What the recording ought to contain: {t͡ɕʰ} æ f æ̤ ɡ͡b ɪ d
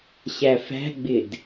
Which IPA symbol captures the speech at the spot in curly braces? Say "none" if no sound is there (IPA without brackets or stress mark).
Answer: ɕ